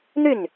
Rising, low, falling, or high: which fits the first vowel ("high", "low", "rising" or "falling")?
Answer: falling